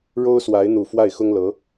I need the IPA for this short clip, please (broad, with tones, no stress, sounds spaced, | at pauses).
ɻ o˥ ʊ̯ s w a˧˥ ɪ̯ n̪ u˨˩ f w a˥˩ ɪ̯ x ʊ˥ ŋ l ɤ˧˥